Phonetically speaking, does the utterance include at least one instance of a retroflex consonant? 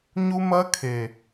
no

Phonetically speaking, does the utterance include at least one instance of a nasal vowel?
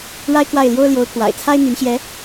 no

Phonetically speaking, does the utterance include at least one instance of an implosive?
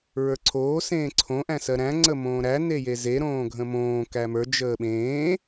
yes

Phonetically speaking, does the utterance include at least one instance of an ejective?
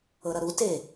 no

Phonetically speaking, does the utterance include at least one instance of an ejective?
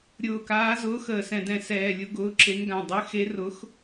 no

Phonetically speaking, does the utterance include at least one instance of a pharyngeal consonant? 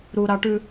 no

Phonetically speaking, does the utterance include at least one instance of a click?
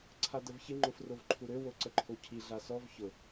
yes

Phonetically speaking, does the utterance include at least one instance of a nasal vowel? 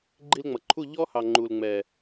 no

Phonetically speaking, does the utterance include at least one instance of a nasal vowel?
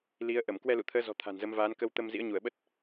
no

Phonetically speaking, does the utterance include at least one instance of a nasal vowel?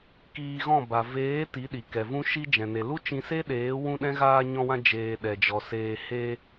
yes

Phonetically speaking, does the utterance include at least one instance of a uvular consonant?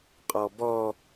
yes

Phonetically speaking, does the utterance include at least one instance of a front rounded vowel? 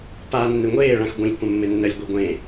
no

